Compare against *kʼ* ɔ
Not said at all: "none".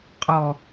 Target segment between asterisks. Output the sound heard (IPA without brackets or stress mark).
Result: qʼ